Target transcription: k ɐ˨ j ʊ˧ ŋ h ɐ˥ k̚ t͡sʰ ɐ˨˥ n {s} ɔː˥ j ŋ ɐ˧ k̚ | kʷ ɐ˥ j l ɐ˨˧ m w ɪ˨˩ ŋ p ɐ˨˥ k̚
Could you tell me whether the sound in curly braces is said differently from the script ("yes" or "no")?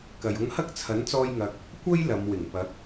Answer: yes